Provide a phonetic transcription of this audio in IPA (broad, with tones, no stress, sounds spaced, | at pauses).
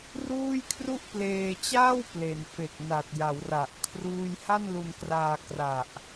r uː˥˩ j kʰ r u˥˩ ʔ p l eː˧ t͡ɕ aː˥˩ w p l e˩˦ n f e˨˩ k̚ n a˨˩ t̚ j a˩˦ w r a˨˩ ʔ kʰ r uː˥˩ j h a˥˩ n l u˧ n k r aː˧ k r a˨˩ ʔ